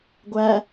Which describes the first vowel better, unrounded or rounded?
unrounded